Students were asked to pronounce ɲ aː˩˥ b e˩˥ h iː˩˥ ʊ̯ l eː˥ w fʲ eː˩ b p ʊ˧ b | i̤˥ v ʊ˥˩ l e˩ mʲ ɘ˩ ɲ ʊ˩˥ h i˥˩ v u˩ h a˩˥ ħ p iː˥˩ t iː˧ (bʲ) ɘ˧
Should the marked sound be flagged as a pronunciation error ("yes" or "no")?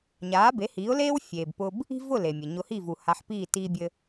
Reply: no